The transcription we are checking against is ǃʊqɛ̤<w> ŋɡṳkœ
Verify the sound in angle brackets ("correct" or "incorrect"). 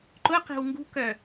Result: correct